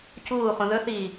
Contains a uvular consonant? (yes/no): yes